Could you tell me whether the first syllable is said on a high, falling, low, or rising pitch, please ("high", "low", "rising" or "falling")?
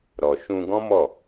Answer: low